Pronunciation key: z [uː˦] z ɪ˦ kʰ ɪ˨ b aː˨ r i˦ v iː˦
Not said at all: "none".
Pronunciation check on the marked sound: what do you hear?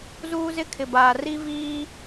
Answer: uː˦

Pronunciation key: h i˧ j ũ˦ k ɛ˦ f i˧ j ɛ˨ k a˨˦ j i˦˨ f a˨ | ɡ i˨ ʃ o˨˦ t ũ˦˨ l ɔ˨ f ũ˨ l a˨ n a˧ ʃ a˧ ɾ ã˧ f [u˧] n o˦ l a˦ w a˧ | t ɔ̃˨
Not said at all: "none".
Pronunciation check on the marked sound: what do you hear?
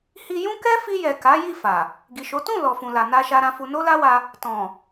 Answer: u˧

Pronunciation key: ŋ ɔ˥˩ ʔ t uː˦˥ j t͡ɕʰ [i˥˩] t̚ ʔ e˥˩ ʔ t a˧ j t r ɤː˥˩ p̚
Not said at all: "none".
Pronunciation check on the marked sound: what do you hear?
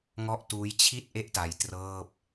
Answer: i˥˩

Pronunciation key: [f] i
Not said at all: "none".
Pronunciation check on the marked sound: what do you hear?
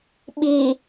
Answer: ɓ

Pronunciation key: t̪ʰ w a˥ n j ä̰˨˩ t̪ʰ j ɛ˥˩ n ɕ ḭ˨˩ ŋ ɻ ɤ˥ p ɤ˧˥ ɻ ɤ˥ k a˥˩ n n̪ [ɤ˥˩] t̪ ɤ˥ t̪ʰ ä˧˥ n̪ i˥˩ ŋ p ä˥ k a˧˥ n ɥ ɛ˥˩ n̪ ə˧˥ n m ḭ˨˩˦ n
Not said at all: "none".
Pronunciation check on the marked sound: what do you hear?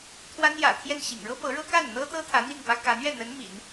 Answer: ɤ˥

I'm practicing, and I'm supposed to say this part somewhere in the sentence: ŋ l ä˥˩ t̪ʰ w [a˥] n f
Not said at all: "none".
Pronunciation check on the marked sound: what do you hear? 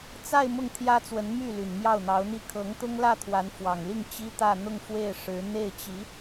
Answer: a˧˥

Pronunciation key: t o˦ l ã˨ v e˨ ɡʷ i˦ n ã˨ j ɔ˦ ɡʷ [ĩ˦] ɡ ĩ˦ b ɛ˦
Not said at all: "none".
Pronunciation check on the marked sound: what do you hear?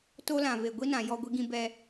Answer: i˦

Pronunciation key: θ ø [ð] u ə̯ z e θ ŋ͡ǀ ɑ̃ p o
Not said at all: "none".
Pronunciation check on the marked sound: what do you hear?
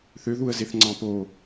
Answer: ð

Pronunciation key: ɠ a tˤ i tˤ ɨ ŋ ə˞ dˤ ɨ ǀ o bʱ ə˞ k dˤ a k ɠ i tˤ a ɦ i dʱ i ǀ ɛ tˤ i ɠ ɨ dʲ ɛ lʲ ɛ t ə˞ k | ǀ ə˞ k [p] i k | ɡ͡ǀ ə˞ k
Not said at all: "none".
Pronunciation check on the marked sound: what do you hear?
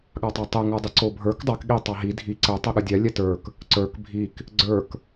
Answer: bʱ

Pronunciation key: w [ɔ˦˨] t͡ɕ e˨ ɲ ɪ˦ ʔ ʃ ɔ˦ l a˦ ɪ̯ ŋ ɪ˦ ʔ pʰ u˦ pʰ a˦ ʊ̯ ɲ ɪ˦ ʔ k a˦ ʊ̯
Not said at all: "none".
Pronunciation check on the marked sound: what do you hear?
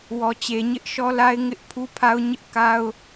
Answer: ɔ˨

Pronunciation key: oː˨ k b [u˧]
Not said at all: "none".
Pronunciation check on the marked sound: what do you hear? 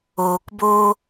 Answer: o˧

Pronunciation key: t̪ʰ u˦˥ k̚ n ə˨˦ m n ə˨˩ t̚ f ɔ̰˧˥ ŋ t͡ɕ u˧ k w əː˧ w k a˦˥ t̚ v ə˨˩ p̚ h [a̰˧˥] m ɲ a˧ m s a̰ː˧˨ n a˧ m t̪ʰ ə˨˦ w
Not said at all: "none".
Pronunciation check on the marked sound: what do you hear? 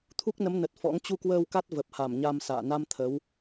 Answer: a˧˩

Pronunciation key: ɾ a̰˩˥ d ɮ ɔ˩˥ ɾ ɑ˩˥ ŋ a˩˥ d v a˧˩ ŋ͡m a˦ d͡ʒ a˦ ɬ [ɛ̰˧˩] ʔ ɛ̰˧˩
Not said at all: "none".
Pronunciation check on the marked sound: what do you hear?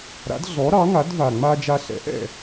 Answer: ɛ̰˩˥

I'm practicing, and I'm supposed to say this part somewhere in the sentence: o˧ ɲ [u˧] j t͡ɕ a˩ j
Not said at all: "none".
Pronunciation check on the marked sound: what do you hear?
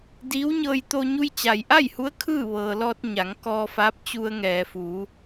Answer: u˧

